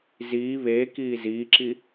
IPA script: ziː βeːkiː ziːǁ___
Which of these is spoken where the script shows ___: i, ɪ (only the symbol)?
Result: i